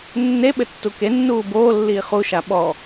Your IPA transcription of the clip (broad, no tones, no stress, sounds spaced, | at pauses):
nː e ɓ ɘ tː u k e nː uː b oː lː iː χ u ʃ a ɓ ɔ